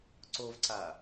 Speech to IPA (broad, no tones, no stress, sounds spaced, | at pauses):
ǀ o v ǀ a